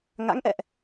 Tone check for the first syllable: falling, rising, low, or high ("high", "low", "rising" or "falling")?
rising